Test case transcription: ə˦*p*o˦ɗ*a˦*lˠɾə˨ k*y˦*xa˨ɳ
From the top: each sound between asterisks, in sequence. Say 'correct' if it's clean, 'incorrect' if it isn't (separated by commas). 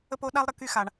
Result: correct, correct, correct